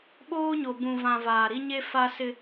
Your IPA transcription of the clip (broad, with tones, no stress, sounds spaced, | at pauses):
ɓ oː˦ ɲ o˨ b ũ˨ v ã˨ v aː˨ ɾ i˦ ɲ e˦ f a˦ s ɪ˦